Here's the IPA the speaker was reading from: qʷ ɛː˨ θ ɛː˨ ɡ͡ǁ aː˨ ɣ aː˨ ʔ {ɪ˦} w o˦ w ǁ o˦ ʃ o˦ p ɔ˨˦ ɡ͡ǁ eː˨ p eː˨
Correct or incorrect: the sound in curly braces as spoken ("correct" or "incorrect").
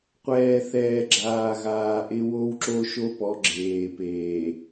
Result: correct